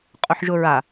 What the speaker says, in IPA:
qʼʊħʒʊɹa

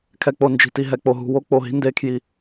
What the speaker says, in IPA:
kʰɛ˨k͡po˨nd͡ʒi̤˨ti˨ ɦɛ˨k͡po˨ɦṳ˨ wo˦ k͡po˨ɦi̤˦ nde˦kʰji˦

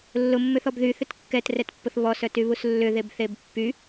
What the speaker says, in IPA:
lːʊmːʏθɔb ðyθʏt kːɛtrɛtpːʊθ βɔsœtyβus lːʏðebθeb pːy

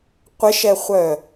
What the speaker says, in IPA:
qʷɪʃɛχʷœ

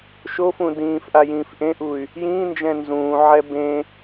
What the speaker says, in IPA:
ʃofũ dĩːfʔa jĩːfʔẽʔuy̯ | jĩːnd͡ʒɛ̃ nzũːʕɛ bẽ

